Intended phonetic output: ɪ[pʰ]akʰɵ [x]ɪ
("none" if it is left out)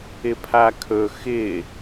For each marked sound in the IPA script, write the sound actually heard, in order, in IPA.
pʰ, x

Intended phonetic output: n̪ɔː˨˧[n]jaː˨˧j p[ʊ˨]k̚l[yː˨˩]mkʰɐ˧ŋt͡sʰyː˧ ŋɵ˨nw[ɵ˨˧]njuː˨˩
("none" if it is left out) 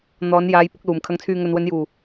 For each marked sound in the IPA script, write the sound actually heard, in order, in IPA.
n, ʊ˨˥, uː˨˩, ɵ˨˧

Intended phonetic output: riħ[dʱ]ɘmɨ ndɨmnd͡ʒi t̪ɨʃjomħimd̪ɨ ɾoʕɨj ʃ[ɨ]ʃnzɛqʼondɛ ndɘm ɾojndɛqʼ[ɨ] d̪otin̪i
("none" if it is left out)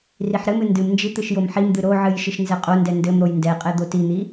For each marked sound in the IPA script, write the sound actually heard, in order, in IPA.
ɾ, ɨ, ɛ

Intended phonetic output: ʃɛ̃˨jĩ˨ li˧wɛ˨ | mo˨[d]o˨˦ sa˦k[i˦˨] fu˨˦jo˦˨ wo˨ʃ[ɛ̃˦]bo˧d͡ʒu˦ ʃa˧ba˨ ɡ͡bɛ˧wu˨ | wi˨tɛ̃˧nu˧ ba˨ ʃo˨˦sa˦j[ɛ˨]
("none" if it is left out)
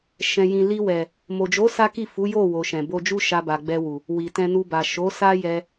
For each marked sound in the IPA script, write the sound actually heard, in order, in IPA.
d͡ʒ, i˦˨, ɛ̃˨, ɛ˧

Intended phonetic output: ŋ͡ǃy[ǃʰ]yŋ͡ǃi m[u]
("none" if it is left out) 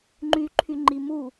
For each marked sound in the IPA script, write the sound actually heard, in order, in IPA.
ǃʰ, u

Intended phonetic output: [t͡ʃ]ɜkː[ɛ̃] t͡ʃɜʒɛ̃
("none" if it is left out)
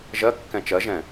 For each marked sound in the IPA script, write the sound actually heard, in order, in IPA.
ʒ, ɛ̃

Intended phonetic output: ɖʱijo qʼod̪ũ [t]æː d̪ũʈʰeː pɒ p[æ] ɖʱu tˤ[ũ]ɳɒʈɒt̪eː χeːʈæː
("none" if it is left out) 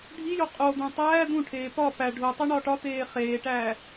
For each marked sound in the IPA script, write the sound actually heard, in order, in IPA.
tˤ, æ, u

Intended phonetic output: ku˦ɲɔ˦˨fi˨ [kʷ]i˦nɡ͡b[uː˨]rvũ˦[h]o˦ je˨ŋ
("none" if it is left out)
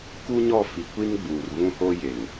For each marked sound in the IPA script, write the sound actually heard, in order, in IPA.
kʷ, uː˨, h

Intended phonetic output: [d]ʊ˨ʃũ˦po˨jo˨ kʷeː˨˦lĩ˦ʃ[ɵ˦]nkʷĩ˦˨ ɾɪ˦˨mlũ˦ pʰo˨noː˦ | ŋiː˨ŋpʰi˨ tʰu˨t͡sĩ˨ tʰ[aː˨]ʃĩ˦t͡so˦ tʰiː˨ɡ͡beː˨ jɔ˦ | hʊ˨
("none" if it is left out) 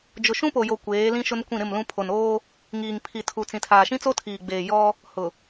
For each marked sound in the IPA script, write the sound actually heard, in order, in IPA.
d͡ʒ, ʊ˦, aː˨

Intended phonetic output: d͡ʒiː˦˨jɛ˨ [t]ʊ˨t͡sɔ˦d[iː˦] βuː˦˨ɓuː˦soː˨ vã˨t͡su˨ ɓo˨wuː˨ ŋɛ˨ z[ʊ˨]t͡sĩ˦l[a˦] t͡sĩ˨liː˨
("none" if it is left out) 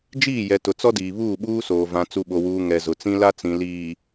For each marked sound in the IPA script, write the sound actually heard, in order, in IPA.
t, iː˨, ʊ˨, a˦

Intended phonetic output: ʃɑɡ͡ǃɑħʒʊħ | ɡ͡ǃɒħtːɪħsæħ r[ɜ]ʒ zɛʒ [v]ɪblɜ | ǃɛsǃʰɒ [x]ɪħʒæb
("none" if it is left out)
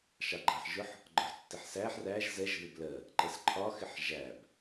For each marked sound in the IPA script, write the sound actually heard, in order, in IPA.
æ, ð, x

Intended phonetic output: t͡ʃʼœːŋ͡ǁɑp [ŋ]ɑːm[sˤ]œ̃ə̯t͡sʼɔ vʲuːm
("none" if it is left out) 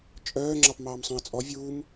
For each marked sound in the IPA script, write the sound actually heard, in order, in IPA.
m, sˤ

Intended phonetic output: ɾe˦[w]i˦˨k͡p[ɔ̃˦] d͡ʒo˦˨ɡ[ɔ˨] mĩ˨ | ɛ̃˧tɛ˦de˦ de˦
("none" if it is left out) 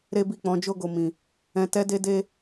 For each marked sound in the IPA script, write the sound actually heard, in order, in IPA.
b, ɔ̃˨˦, o˨

